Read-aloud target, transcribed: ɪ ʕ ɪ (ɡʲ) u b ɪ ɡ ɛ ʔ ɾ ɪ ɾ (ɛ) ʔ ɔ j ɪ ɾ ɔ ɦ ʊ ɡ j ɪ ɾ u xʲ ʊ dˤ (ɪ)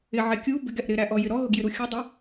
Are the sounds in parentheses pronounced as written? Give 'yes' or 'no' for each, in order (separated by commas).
no, no, no